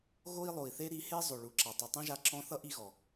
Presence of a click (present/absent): present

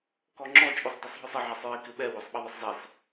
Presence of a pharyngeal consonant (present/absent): present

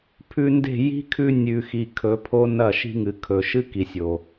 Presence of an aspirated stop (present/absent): present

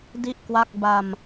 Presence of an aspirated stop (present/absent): absent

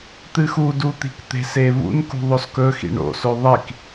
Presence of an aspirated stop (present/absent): absent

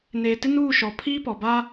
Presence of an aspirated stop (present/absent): present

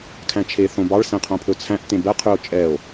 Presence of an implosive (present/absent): absent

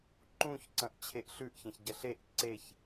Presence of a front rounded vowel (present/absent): absent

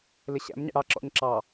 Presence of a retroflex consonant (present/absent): present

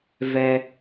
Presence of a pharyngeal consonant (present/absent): absent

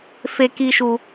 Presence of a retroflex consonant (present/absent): absent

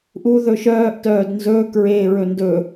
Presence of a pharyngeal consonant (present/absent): absent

